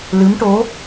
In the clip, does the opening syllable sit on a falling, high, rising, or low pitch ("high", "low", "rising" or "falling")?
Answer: rising